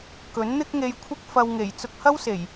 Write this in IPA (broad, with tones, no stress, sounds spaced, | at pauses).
k ɵ˨˥ n n̪ ɪ˥ k̚ ŋ e˧ j kʷʰ ɪ˥ k̚ f ɐ˧ w ŋ e˨˩ j t͡s ʊ˧ k̚ h ɐ˥ w s e˨˩ j